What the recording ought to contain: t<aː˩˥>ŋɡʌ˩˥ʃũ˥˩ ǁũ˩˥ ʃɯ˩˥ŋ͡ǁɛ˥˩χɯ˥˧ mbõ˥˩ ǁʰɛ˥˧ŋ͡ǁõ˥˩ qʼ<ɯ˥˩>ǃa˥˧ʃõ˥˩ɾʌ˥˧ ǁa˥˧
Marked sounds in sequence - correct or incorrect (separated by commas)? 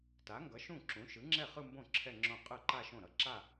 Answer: incorrect, correct